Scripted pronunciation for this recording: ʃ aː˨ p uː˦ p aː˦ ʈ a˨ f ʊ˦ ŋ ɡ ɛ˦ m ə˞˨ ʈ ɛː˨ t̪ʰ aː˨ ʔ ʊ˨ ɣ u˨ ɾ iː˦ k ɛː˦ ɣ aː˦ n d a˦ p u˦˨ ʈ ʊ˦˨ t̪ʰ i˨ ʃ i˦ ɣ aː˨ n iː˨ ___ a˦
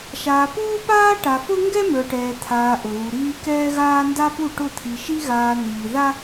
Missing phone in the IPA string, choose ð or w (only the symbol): ð